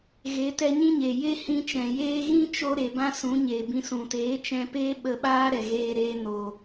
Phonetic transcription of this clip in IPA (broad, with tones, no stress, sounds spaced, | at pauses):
ɣ e˨˦ t ɛ˧ ɲ ĩ˦ ɲ e˨ j e˦ h ĩ˧ t͡ʃ ɛ̃˨ j eː˧ ɣ ĩ˦ t͡ʃ o˧ ɾ e˨ b ã˦ s ũ˨˦ ɲ eː˨ b ĩ˧ s ũ˨ t eː˨˦ t͡ʃ ɛ̃˧ p eː˦ ɓ ə˧ ɓ aː˦ ɾ ɛ˨ ɣ eː˧ ɾ eː˧ n o˨